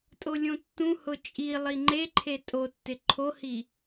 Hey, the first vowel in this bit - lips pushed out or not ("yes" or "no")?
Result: yes